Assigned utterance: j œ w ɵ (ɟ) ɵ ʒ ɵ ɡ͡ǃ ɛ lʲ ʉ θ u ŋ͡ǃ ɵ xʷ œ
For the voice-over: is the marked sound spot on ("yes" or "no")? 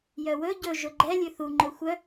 yes